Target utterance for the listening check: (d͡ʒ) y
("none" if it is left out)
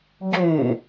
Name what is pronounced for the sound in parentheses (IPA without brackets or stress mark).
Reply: ɟ